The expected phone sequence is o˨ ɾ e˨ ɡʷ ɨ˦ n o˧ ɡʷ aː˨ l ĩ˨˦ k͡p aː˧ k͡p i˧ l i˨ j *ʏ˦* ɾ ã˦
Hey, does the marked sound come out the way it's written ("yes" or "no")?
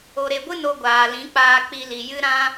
no